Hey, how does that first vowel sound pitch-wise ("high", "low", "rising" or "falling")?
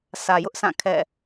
low